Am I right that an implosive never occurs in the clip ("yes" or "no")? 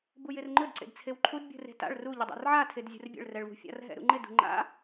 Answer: yes